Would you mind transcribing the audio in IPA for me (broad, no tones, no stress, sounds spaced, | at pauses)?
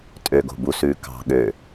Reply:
tʼ ø ɡ o̤ b u s ʉː k ɑ̤ ɠ ø